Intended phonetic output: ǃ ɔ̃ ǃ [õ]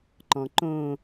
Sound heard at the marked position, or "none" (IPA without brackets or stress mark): õ